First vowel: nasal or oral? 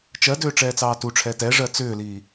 oral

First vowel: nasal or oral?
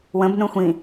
nasal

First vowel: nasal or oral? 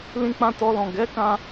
nasal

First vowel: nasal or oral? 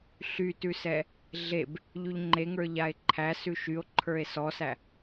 oral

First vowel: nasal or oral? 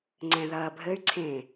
nasal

